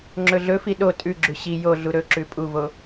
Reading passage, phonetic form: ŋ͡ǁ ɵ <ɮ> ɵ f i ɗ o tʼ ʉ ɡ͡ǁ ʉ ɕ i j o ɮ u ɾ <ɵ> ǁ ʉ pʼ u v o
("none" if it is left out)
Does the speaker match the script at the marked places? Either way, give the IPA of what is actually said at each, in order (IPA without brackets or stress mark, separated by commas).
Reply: ɮ, ɵ